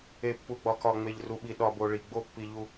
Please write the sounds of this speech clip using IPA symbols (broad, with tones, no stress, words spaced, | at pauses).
e˨pːu˨ɡ͡bɒ˨ kɒ˨ŋ͡me˨ʎru˨ɓi˨ ɗɒ˨bo˨ ɭi˨ɡ͡bo˦ pːi˨ ʎu˨